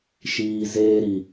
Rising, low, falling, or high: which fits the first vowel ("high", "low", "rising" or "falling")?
low